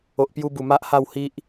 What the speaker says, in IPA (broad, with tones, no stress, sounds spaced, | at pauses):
o˨ ʔ p j u˧ b u˨˩ m a˦ ʔ h a˥˧ w h i˦ ʔ